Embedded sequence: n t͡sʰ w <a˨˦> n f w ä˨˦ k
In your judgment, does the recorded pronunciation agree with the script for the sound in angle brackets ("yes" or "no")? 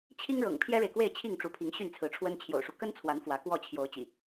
yes